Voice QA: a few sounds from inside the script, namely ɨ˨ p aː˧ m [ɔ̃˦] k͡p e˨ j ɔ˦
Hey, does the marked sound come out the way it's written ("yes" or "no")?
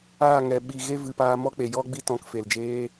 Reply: no